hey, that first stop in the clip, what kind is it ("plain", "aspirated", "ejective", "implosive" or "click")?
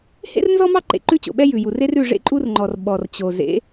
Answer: click